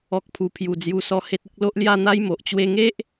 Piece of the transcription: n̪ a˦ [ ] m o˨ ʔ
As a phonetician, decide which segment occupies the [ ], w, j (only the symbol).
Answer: j